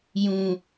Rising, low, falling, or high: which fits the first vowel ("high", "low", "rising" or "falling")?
low